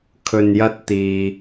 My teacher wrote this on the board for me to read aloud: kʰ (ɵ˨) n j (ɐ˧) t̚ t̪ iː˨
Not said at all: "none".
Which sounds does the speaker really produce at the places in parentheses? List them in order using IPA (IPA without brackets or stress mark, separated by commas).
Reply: ɵ˨, ɐ˧